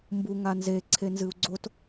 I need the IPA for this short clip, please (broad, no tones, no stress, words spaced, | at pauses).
mbuŋanze ǀʰenzɨu̯ɡ͡ǀot